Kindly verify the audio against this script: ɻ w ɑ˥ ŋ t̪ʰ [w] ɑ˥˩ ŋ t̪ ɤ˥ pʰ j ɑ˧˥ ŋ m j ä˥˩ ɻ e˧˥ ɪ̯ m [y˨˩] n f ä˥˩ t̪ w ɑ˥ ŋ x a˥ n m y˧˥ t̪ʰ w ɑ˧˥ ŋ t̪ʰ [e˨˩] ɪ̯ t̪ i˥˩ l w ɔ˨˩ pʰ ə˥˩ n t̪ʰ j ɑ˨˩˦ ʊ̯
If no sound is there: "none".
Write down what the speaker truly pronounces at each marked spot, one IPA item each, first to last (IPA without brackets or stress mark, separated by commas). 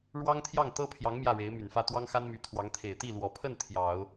j, y˨˩, e˨˩